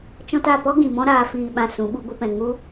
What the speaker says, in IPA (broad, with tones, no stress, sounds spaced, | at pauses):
t͡ʃ ɔ̃˧ t a˦˨ p ɔ˦ ɡ ĩ˨ m ɔ̃˦ ɾ aː˨ f iː˨ ɓ ã˨ s ũ˨˦ ɓ u˦ ɡʷ ɨ˦ p ɛ̃˧ ŋ u˦